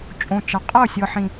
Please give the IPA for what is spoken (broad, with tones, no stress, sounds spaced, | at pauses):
t͡ʃʼ õ˨ t͡ʃ a˨ qʼ ɤ˦˨ sʲ ɤ˨ ħ ĩ˨